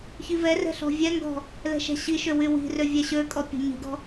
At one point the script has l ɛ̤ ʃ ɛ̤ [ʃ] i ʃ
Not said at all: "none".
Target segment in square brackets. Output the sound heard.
ɕ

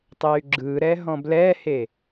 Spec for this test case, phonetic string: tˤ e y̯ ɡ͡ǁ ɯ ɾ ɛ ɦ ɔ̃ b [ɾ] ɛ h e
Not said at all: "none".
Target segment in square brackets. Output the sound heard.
l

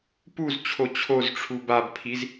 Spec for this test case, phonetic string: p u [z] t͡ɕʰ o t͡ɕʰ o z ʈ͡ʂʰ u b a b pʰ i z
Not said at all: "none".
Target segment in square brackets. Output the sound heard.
z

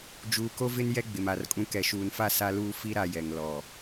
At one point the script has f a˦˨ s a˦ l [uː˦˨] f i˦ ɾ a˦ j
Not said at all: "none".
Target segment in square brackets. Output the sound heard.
uː˦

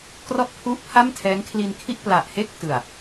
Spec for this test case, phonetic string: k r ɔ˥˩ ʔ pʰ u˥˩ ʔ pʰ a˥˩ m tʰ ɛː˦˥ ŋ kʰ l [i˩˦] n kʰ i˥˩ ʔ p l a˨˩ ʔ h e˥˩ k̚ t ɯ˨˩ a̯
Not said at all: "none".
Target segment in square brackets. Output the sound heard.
i˧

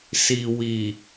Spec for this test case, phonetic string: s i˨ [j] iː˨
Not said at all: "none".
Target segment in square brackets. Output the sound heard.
w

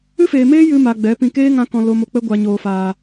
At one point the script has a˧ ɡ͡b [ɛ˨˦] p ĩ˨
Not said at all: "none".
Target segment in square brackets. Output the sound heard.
ɛ˨˦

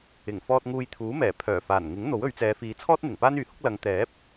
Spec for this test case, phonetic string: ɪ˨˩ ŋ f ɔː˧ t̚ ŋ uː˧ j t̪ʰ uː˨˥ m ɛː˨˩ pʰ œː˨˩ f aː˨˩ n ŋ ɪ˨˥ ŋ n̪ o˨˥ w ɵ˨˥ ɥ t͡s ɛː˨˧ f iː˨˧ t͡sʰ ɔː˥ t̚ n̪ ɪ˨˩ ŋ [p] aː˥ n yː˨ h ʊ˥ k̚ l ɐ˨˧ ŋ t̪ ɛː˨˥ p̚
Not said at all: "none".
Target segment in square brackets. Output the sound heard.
p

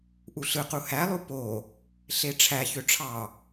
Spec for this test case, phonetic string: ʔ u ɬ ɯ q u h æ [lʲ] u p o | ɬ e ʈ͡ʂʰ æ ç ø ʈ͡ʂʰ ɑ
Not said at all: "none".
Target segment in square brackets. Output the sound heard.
lˠ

